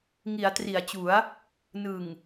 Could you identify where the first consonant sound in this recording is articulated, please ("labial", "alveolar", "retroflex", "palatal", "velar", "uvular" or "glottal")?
velar